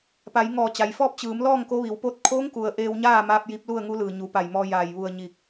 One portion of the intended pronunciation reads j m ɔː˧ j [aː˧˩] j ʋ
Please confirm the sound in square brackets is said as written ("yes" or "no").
yes